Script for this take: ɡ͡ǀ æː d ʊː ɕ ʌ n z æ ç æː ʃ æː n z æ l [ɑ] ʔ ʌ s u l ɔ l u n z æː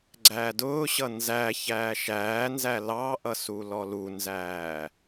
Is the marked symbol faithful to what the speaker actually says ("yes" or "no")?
yes